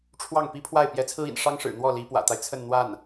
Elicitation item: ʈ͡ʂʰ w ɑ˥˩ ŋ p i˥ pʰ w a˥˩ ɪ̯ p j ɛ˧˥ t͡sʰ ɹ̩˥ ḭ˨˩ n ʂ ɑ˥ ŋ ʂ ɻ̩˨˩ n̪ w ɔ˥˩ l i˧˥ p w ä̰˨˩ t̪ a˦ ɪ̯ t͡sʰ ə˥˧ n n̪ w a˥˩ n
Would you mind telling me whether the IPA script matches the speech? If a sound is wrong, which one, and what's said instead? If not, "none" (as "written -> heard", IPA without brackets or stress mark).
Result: none